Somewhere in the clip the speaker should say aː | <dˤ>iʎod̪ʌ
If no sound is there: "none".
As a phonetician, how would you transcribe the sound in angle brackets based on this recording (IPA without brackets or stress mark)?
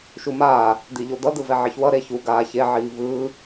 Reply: d̪